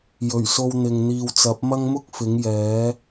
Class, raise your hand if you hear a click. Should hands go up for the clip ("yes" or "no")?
no